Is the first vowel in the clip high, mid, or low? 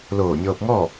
mid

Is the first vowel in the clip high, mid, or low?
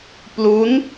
high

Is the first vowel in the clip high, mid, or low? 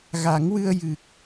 low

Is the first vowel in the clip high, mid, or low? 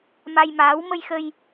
low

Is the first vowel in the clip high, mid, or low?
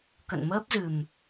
mid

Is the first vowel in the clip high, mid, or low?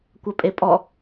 low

